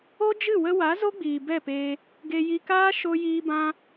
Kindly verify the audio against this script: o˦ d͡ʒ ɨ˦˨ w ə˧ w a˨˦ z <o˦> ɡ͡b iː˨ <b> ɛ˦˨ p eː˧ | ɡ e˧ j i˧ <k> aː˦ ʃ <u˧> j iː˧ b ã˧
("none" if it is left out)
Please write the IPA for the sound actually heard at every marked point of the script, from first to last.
o˦, b, k, o˧

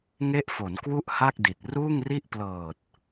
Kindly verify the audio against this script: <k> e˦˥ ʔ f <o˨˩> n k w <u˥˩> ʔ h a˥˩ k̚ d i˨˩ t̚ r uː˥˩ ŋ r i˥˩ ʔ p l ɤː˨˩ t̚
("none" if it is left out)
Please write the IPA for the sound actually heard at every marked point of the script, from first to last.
ŋ, o˩˦, u˥˩

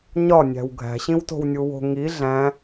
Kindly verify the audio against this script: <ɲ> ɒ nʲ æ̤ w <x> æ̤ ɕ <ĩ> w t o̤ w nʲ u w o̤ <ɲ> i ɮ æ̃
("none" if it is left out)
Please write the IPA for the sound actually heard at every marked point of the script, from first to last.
ɲ, ɡʱ, ĩ, ŋ

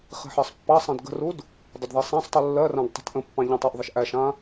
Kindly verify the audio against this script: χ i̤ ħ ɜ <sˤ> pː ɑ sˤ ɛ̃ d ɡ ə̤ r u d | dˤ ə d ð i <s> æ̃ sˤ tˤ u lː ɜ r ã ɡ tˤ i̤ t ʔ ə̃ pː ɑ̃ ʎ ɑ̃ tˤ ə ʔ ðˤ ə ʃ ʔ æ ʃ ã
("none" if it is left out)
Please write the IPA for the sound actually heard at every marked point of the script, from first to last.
sˤ, sˤ

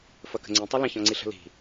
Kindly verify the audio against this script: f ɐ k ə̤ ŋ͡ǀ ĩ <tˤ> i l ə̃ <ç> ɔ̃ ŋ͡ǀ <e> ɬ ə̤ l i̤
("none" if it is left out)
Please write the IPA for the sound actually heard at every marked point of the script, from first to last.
tˤ, ç, i

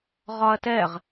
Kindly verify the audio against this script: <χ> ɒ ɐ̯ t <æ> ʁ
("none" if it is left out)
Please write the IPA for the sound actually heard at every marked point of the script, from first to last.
ʁ, ɛ

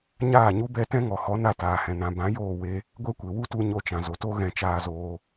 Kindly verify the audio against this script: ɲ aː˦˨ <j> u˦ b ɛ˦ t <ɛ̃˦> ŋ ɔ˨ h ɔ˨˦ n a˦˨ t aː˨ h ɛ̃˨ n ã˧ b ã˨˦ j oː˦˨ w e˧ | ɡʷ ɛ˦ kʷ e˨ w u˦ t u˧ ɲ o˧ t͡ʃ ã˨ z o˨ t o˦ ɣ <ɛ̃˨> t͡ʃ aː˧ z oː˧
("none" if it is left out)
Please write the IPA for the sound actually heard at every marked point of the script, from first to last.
ɲ, ɛ̃˦, ɛ̃˧

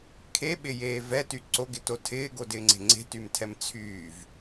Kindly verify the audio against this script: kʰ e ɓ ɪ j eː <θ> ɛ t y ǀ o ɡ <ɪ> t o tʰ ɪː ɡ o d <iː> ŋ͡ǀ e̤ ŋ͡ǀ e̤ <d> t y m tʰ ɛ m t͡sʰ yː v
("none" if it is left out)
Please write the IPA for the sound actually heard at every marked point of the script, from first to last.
v, ɪ, ɪː, none

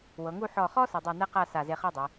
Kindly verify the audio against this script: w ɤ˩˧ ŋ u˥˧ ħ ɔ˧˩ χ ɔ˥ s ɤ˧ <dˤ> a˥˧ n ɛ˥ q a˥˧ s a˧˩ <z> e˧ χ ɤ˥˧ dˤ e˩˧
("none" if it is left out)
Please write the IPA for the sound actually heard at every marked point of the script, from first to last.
dˤ, z

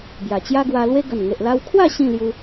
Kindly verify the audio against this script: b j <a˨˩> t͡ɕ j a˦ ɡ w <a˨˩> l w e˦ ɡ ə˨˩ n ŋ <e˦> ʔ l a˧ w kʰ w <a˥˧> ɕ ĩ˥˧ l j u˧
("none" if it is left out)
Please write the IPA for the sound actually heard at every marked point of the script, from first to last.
a˨˩, a˧, e˨, a˥˧

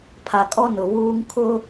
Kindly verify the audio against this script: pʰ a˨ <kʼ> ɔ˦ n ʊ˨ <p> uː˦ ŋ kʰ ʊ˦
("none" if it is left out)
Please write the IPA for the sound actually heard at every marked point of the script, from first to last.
kʼ, β

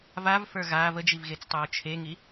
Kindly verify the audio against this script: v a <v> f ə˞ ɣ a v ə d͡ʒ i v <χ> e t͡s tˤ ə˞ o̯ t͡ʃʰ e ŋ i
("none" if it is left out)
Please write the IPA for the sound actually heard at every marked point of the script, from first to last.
v, ɣ

